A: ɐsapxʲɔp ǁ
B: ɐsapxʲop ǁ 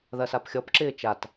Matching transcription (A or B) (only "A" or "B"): A